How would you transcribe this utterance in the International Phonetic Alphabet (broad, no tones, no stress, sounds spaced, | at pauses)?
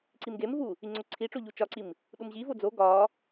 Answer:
ǀ i m ɡ e m v u | i ŋ͡ǀ o ǀʰ i ʈ͡ʂ o ʎ u t͡ʃ ɒ ǀ i m | ɗ u m ʑ i v o d͡z o ɡ ɒ